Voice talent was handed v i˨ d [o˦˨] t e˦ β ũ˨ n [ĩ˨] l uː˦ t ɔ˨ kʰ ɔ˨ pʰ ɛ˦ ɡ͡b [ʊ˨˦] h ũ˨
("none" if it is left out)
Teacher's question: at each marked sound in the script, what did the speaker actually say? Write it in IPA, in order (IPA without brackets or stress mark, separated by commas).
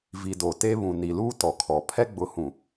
o˨, i˨, ʊ˨˦